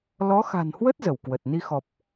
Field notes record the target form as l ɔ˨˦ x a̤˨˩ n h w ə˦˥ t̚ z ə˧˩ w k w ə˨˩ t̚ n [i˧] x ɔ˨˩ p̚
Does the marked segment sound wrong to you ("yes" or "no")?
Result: no